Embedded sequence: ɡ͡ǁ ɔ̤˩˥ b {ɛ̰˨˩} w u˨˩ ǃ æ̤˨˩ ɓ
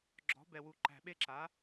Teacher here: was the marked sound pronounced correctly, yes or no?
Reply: no